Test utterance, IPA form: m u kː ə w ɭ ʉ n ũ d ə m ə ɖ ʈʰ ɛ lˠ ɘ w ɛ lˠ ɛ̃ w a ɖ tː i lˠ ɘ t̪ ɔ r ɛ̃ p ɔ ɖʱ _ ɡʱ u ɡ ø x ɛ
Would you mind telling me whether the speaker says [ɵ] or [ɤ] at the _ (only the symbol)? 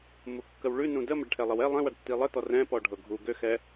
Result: ɤ